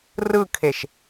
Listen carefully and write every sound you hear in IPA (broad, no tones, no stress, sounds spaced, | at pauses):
r ɯ kʰ e ʃ